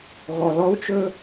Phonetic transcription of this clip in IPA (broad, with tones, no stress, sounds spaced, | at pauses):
ɣ ɔ˨ l ɔ˦ u̯ t͡ʃ ɵ˦